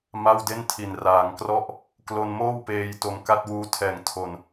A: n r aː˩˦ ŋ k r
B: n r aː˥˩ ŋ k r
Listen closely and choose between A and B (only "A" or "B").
A